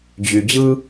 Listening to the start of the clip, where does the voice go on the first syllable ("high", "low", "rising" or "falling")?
low